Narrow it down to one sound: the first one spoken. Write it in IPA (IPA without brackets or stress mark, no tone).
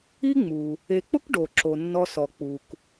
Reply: i